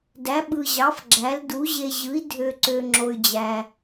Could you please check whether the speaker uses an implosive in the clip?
yes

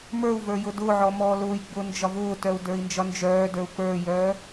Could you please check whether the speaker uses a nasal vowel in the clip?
no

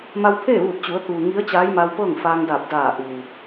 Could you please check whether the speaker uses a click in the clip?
no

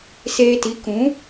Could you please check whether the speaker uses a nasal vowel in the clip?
yes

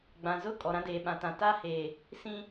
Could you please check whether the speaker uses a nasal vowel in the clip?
yes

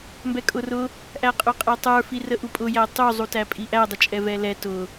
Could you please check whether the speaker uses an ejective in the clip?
yes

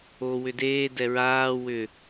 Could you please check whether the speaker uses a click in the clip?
no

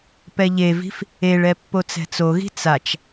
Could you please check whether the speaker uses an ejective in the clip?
no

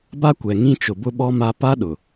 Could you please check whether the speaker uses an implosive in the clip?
yes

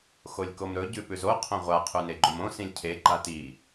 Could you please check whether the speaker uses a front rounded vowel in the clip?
no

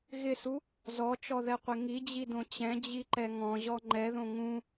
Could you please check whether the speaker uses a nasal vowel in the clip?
yes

